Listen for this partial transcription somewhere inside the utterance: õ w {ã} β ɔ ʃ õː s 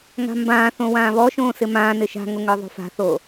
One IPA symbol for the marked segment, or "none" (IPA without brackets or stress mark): ãː